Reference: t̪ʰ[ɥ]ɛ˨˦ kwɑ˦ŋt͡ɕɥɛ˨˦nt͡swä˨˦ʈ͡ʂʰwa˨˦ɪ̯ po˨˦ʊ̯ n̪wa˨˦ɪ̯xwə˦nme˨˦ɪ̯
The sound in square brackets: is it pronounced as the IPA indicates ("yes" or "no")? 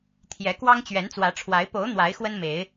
no